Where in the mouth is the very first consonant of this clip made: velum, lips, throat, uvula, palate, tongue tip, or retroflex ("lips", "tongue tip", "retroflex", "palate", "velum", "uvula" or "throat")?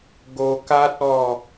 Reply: velum